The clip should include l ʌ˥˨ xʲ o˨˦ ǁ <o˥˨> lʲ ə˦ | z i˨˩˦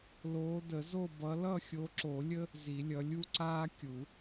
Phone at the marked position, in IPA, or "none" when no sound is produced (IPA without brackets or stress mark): o˨˩˦